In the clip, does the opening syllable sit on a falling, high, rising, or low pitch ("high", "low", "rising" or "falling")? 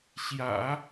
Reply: low